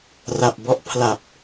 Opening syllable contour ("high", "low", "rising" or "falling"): low